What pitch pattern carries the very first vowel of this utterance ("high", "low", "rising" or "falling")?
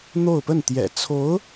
falling